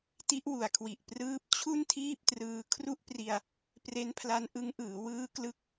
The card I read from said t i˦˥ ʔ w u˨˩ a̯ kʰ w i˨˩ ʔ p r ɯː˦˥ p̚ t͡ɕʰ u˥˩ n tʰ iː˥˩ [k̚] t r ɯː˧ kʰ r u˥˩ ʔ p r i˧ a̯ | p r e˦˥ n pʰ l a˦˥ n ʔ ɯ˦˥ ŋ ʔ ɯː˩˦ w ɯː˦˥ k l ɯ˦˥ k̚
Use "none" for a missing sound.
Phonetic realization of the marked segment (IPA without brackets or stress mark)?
p̚